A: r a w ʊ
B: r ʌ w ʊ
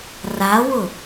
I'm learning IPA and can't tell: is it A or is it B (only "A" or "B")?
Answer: A